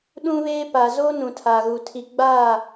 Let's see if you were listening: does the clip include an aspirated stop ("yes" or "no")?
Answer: yes